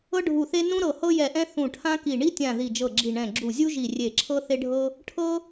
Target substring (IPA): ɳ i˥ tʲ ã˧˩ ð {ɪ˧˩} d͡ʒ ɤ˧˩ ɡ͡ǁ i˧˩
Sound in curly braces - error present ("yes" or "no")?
yes